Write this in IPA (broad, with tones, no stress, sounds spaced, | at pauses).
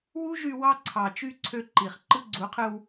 w u˦ ʒ y˧ w ɑ˧ ǀʰ ɑ˨ t͡ʃ y˧ ǀʰ ø˧ ǃ i˨ χ ǃ ɯ˧ ɡ͡ǀ u˨˦ qʰ ɯ˧ w